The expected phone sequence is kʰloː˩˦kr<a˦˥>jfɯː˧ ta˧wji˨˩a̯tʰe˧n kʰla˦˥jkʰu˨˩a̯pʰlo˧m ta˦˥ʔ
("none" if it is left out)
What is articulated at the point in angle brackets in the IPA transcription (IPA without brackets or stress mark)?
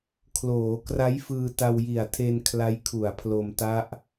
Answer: a˦˥